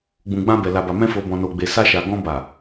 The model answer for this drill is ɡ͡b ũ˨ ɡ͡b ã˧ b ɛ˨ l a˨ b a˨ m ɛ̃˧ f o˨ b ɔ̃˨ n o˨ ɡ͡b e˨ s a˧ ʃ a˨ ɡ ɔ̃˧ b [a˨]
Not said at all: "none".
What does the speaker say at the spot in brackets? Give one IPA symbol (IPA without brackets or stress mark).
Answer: a˨